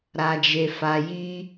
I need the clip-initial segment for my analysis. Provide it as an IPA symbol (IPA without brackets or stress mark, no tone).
ɾ